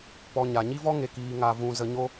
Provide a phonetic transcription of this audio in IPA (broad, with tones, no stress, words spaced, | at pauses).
pɔ˧ɲa˨ ɲi˦vɔ˦ŋe˨ kiː˧ŋa˧vũ˧ zə˧ɲo˦